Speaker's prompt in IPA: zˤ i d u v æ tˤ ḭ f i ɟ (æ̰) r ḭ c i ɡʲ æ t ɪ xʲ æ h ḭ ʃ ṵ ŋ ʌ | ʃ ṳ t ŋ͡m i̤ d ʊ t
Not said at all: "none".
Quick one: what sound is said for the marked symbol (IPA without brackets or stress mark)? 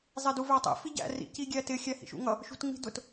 æ̰